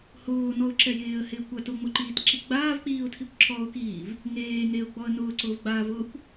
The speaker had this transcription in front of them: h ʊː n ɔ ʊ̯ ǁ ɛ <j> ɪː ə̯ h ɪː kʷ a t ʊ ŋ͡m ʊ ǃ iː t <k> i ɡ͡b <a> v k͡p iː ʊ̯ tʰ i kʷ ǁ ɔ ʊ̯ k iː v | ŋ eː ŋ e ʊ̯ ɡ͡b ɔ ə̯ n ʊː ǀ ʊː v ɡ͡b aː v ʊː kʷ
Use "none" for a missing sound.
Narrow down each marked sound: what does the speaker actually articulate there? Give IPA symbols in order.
j, ǁ, aː

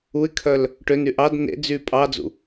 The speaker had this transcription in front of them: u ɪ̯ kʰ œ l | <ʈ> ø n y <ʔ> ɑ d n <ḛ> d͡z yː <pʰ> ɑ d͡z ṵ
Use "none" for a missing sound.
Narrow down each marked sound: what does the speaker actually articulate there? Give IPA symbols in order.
ʈ, ʔ, ḛ, pʼ

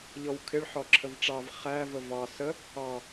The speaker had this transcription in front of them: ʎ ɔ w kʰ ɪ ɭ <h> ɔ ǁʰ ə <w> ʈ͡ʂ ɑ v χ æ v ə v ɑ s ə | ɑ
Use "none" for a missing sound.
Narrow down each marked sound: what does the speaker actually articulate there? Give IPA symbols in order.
ħ, v

